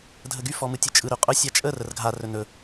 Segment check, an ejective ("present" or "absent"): present